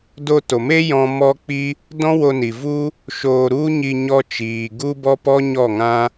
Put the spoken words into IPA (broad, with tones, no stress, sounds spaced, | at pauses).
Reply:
d o˧ t o˨ m e˦ j ɔ̃˦ m ɔ˦ k͡p i˦ | d ɔ̃˦ w o˧ n i˨ v u˦ | ʃ o˧ ɾ u˦ ɲ i˧ ɲ ɔ˦ t͡ʃ iː˨ ɡ u˦ b ɔ˦ p ɔ˦ ɲ ɔ˦˨ ŋ ã˦